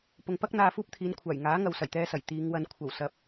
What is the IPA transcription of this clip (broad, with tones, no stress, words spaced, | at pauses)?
pʊ˨ŋpɐ˥k̚ n̪aː˧fuː˥p̚t̪ʰiː˨˧nkʷʰaː˨˩j ŋaː˨˥ ŋɐ˨wsɐ˨˩jt̪ɛː˧sɐ˨˩j t̪iː˨˧ŋwɐ˧n kʷʰɐ˨˩w sɐ˨˥p̚